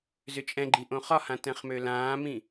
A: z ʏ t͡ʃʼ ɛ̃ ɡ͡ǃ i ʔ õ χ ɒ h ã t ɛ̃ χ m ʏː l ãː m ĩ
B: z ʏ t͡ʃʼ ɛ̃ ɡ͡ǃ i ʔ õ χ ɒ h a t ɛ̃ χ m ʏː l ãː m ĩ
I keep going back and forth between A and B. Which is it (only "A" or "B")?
A